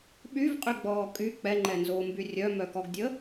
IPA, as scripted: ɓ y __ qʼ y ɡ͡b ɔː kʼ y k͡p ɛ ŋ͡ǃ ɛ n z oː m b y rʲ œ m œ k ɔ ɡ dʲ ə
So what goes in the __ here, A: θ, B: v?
B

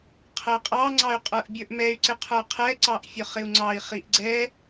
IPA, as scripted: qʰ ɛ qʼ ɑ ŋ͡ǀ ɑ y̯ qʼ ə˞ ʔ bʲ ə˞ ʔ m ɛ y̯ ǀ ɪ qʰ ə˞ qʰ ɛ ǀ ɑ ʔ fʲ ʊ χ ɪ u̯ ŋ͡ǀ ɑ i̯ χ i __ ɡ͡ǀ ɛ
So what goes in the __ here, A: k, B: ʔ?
B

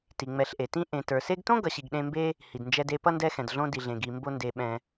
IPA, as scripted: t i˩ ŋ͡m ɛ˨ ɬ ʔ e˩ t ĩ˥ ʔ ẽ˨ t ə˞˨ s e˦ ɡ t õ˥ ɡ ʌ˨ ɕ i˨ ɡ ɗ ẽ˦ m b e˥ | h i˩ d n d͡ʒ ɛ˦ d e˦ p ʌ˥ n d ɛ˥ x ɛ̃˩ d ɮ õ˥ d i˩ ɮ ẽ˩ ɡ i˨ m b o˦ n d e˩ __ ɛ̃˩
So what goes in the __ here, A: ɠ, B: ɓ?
B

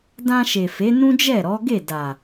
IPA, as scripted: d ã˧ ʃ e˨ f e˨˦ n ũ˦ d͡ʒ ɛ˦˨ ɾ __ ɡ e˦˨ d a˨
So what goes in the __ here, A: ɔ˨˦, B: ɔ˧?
A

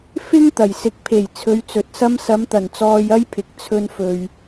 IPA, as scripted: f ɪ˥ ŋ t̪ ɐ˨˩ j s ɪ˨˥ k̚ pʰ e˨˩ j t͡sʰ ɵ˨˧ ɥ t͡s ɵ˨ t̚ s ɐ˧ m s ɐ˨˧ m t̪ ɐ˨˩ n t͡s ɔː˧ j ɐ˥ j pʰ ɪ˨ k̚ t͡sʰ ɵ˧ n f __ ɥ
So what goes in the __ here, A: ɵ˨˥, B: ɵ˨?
B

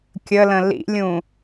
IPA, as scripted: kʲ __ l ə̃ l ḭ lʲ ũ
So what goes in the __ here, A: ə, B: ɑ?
A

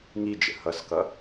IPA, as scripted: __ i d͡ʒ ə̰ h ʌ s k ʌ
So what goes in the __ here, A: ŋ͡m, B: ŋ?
B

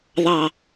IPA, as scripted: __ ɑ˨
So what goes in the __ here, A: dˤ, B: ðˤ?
B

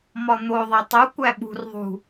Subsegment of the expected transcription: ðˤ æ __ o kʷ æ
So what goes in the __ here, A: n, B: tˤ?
B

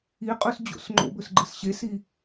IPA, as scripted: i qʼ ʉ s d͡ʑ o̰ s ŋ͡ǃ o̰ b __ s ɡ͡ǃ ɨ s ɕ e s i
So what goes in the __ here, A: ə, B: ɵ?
B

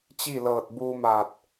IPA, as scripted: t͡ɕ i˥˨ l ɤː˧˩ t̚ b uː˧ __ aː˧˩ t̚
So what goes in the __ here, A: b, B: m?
B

